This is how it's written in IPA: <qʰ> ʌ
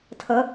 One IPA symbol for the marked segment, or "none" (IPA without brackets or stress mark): tʰ